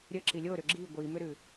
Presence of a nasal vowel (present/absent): absent